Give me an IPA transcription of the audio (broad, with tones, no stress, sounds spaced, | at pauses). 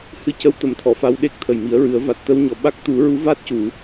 h ɨ˧ c ə˧ w t̪ ə˨˩˦ m t̪ʰ ɔ˨˩˨ f a˧ w ɗ e˦˥ k̚ t̪ʰ ə˨˩ j m i˨˩˦ ə̯ ɹ ɨ˨˩˦ ə̯ v a˨˩ t̚ t̪ ə˧ w ɲ ɔ˨˩ ɓ a˦˥ k̚ t̪ u˨˩˦ ɹ u˧˥ v a˦˥ t̚ c u˨˩˨